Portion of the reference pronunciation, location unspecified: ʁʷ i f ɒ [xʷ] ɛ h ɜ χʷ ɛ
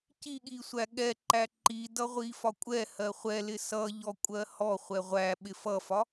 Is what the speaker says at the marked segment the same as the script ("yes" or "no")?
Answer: no